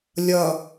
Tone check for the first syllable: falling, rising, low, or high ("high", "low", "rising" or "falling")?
low